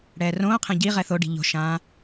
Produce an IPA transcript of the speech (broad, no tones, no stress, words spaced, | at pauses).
ɽɛːrõːqʰẽ ɟi ʁɛθoɖi̤ ʎo̤ʃãː